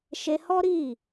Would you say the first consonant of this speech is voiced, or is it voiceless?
voiceless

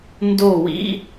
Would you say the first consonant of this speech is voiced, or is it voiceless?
voiced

